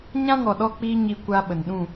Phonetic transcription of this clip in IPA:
ɲã˦ŋɔ˨ɗɔ˧k͡piː˧ ɲi˧kʷa˧ ɓə˨nɗũ˦˨

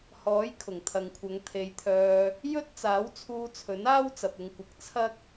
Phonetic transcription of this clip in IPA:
hɔː˨˥jkʰʊ˨˩ŋt̪ʰɐ˨ŋkʷʰɐ˨˧ŋ t̪ʰe˨˧jt̪ʰœː˧ | jɵ˥t̚ t͡saː˨˥wt͡sʰuː˧t͡sʰɵ˨˥naː˥w t͡sɐ˨p̚ʊ˧ŋkʷɐ˨k̚ t͡sʰɐ˥k̚

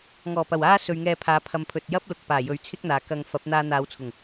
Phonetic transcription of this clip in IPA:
ŋɔː˨˩pɐ˨˩w aː˥sɵ˨ɥ ŋɛː˧pʰaː˨˥ pʰɐ˨mpʰɵ˨t̚jɐ˥p̚lʊ˨k̚ paː˨˩ jɵ˨˥ɥ t͡sʰɪ˥k̚n̪aː˨kɐ˧ŋ fɐ˨˥p̚n̪aː˧ n̪aː˨˧wt͡sʰʊ˨˩ŋ

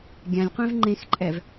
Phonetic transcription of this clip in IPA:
ɡʲãlʲqʷẽv ŋ͡ǃẽxǃʼɛv

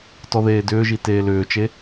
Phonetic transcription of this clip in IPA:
tɔðeːdʏːʒi teːlʏːt͡ʃe

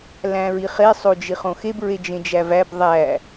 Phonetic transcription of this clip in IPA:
læ̃ɹiχe sˤod͡ʒiχõxeb ɹed͡ʒẽd͡ʒævæb ðˤæ

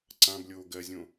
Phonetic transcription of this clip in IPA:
ǀãblʲoː ɡɜzʲõ

